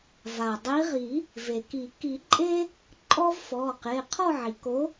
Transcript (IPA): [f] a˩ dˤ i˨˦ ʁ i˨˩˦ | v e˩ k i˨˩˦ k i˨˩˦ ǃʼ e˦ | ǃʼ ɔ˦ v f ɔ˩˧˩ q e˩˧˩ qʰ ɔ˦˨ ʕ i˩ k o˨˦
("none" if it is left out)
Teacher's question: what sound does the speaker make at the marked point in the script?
v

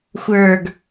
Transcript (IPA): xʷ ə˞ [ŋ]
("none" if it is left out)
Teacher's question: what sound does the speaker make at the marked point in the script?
ɡ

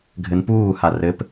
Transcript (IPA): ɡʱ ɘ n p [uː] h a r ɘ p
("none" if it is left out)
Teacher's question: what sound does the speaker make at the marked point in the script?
uː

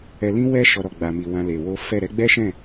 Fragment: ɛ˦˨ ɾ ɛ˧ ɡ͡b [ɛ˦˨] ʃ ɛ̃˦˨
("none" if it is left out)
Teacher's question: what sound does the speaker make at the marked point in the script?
ɛ˦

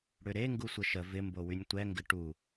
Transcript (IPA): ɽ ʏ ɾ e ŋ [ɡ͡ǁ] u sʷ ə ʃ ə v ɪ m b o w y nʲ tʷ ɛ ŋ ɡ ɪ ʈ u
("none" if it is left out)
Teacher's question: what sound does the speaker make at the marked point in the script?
ɡ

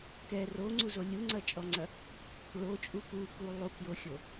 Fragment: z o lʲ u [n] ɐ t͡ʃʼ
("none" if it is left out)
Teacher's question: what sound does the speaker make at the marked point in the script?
ŋ͡ǀ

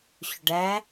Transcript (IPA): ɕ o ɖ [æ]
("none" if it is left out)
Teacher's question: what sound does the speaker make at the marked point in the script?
æ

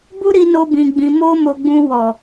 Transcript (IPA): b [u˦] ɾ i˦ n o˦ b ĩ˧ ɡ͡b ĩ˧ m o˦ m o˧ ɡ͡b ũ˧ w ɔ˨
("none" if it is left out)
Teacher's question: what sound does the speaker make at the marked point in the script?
u˦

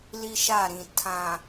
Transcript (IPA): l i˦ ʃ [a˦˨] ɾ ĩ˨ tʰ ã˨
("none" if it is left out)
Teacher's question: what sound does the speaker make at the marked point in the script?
a˦˨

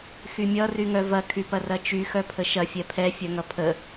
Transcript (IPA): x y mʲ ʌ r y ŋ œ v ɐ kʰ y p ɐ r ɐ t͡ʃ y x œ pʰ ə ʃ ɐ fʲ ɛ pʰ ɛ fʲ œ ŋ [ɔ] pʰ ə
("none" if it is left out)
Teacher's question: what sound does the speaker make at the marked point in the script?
ʌ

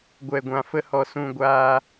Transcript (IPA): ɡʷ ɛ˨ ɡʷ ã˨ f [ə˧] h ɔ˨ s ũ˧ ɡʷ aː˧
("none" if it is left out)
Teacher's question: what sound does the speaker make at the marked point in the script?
ə˧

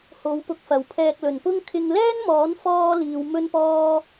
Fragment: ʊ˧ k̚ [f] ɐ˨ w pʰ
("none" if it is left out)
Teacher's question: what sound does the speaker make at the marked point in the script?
f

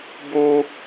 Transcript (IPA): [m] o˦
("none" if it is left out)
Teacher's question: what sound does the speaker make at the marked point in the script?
b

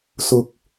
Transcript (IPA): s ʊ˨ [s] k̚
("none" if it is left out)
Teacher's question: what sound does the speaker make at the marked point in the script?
none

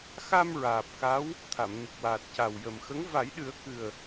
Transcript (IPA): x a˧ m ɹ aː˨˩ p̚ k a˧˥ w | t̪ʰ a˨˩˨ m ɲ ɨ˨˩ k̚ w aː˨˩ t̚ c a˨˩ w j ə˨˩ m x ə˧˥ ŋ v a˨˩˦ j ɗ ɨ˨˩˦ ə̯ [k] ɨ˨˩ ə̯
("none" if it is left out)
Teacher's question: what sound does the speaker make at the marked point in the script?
k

